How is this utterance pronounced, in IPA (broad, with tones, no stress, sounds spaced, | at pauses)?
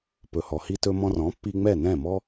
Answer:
p ɵ˩ h ɔ˩ h i˧ t ɵ˧ m ɔ̃˧ r ɔ̃˩˥ pː i˧ ŋ͡m ɛ˥˩ n ɛ̃˥˩ m ɔ˥